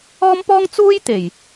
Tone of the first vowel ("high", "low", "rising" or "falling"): high